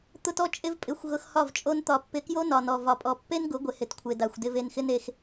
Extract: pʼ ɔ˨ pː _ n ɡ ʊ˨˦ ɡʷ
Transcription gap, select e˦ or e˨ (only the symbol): e˦